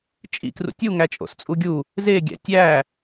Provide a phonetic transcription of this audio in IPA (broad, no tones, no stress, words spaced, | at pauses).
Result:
t͡ʃʼḭkrṵ tʲuŋæ t͡ʃʼo̰st͡sʼuɡʲu | zeɡʲæ̰ tʲæ